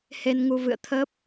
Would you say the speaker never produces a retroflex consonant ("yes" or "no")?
yes